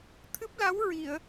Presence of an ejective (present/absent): absent